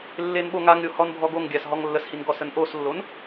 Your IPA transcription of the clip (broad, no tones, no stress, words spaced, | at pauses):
lːenɓoŋaŋɾʲo hɔnbʱɔɡoŋɡʲas ɦɔŋlːəshin ɡɔsənʔoslːon